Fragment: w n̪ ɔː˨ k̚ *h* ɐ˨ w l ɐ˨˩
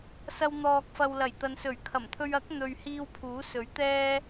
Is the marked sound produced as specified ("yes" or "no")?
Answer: no